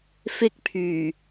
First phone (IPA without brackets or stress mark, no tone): f